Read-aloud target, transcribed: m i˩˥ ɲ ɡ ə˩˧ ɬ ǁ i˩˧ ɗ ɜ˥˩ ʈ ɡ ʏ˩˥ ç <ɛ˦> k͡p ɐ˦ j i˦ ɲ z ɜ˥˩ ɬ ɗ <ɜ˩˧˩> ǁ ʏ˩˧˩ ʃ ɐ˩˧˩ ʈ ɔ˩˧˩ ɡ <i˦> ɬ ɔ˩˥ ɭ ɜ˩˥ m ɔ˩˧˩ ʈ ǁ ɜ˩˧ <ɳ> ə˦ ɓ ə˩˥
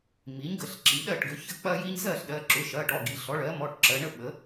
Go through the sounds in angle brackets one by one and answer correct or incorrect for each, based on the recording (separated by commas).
incorrect, correct, incorrect, correct